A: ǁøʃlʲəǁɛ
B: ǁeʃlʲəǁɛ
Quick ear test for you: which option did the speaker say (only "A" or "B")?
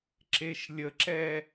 B